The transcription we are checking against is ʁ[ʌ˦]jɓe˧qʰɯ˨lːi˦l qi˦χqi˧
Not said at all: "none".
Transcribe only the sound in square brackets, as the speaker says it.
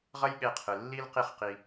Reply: ʌ˦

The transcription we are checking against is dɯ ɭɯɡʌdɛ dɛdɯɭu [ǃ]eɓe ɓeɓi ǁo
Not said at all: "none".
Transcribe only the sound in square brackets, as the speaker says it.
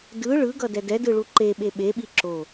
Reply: ǃ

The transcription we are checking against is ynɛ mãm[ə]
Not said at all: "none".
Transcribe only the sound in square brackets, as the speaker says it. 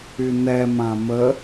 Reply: ə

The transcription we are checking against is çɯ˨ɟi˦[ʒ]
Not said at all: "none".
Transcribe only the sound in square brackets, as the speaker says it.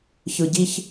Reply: ç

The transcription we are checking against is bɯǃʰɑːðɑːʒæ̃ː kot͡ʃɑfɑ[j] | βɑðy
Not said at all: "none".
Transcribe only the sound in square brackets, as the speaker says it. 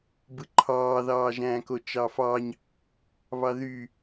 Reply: ɲ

